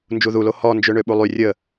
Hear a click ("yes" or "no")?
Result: no